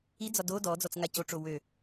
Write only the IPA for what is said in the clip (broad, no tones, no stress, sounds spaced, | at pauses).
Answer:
i d͡z ɒ d o d ɔ d͡z ɔ t͡s ŋ a c o ʈ͡ʂ o w ø